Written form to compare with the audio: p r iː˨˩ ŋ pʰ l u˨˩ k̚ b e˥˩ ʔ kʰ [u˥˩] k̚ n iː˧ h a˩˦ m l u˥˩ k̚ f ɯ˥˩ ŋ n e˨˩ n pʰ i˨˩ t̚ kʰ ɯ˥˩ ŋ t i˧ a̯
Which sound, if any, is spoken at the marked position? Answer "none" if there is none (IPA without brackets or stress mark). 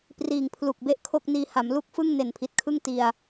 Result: o˥˩